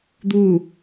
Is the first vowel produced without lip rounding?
no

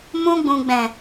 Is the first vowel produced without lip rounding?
no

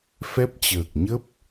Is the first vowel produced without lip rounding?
yes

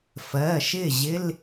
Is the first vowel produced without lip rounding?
yes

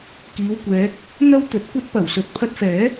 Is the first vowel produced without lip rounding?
yes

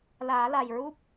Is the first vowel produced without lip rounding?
yes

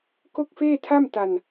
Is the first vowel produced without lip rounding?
no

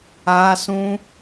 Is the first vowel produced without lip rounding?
yes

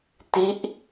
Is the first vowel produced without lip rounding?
yes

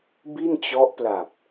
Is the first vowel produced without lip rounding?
yes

